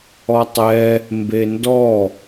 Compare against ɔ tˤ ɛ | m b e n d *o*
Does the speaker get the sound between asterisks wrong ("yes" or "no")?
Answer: yes